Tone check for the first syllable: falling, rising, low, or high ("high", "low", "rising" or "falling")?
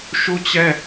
falling